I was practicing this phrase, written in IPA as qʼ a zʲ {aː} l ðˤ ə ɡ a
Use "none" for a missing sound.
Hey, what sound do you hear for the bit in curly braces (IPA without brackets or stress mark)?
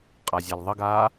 a